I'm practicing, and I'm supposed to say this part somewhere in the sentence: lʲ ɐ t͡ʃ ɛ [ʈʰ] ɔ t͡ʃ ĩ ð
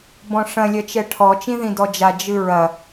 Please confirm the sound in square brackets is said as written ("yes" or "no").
yes